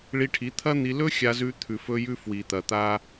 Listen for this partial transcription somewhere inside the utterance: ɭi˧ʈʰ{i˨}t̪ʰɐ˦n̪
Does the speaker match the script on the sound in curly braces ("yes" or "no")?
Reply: no